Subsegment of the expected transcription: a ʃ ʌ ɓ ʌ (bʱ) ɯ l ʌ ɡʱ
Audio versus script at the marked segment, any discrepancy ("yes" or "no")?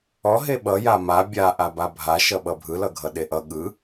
no